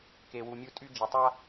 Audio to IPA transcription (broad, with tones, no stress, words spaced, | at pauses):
ke˨wu˨mʲu˧ tʼy˧ d͡ʒə˨tˤa˦